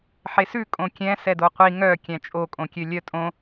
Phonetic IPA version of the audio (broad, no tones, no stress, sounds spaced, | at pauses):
ħ e s ʉ kʼ õ kʲ ɛ̃ s ɛ d o qʷ i ŋ œ kʲ æ̃ t͡ʃʼ o kʼ õ kʲ ø lʲ œ tʼ õ